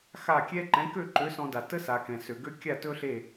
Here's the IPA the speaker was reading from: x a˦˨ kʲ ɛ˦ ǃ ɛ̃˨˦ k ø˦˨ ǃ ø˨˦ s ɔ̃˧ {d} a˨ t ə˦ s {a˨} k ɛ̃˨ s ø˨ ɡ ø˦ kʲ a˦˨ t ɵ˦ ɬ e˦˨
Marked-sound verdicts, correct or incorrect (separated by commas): correct, correct